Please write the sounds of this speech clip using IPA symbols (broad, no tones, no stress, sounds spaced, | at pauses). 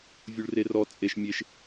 vʲ u ɭ r e r ɔ t͡sʼ e ʃ mʲ e ʃ